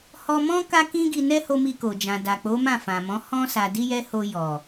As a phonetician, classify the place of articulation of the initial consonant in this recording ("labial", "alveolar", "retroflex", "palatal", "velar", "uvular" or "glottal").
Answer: glottal